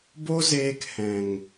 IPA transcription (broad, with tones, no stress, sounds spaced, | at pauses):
b o˦ z eː˧ k h ɛ̃˨ ŋ